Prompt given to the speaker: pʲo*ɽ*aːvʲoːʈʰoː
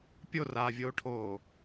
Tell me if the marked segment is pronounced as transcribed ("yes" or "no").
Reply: no